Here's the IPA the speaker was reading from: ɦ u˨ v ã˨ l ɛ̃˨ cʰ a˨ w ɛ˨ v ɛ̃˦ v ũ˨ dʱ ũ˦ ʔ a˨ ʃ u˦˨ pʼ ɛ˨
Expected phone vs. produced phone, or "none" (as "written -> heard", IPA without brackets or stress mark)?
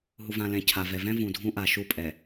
w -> v